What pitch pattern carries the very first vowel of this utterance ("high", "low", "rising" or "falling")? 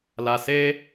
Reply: low